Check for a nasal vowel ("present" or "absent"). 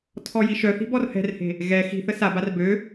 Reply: absent